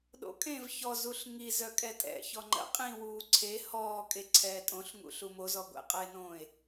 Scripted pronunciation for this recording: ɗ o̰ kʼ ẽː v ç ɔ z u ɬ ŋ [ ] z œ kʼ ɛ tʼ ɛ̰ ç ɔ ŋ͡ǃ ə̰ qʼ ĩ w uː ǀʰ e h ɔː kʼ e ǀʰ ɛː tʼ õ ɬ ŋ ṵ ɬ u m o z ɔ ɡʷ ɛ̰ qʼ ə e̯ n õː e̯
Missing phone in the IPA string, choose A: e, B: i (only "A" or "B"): B